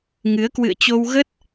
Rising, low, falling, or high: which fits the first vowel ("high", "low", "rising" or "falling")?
rising